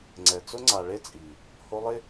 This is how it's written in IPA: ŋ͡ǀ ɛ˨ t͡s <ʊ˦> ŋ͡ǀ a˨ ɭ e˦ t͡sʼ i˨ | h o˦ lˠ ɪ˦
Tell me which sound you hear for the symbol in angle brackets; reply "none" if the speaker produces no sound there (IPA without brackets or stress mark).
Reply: ʊ˦